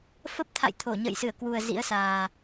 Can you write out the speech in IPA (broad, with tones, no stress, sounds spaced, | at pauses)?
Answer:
f ə˦˥ p̚ t̪ʰ a̰˧˨ j t̪ʰ o˧˩ ɲ ə̰ː˧˨ j s ɨ˧˩ ə̯ k w u˨˩ ə̯ z ḭ˧˥ ə̯ s aː˨˩